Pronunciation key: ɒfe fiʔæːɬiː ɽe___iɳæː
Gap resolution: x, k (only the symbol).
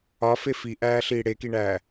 k